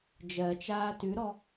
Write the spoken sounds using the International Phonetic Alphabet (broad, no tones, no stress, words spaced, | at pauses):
d͡ʒɜt͡ʃaː tʉɾɔ